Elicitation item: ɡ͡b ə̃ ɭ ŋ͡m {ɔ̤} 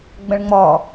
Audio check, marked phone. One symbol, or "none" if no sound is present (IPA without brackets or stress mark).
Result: ɔ